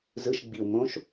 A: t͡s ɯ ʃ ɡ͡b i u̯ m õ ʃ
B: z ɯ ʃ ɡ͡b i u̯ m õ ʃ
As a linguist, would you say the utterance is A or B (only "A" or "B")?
B